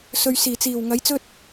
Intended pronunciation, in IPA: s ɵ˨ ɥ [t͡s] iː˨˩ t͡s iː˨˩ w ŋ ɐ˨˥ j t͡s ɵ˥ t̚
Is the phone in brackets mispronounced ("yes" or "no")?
yes